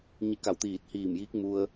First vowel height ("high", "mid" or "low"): high